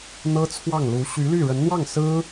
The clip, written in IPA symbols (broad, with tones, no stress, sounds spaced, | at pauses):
n̪ ɤ˥ t͡sʰ w ɑ˥˩ ŋ l u˧˥ ɕ y˧˥ l y˥˩ ɻ ə˧˥ n n̪ w ɑ˥˩ ŋ s ɹ̩˥